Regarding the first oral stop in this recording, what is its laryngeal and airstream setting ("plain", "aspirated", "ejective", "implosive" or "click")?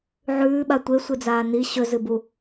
implosive